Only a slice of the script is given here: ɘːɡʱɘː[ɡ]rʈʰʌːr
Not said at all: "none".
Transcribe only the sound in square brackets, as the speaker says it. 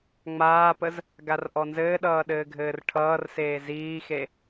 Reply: none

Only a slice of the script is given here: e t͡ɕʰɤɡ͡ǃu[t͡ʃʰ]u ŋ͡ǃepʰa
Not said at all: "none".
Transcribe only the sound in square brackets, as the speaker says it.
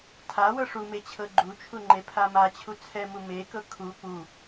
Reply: t͡ʃʰ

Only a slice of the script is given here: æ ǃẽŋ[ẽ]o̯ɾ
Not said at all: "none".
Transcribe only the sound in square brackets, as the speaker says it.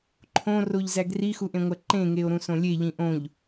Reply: e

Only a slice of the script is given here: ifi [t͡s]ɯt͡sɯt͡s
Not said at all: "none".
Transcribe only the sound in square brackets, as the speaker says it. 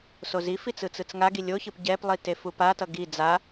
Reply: t͡s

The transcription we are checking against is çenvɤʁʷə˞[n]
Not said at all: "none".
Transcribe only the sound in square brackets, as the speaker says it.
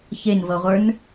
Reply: n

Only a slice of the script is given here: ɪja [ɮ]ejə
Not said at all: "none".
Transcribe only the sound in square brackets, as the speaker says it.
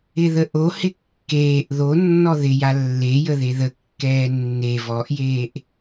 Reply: lː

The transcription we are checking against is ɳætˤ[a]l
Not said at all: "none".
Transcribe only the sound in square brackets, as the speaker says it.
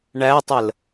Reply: ə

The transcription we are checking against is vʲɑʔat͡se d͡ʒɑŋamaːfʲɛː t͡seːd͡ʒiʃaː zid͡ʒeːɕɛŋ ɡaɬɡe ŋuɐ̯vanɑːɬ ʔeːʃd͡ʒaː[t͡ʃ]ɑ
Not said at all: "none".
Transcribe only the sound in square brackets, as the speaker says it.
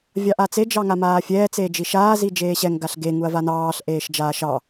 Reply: ʃ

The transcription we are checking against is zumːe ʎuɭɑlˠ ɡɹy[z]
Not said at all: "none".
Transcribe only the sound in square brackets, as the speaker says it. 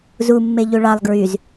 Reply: z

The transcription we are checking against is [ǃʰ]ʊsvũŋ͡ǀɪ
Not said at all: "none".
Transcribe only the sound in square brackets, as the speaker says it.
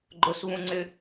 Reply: ɡ͡ǃ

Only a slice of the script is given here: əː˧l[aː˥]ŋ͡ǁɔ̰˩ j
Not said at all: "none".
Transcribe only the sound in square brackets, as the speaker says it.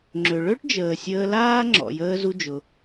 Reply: aː˥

